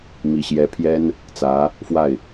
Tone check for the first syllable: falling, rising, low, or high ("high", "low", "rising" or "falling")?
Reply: low